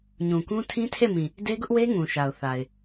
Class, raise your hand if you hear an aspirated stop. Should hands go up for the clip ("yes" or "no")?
yes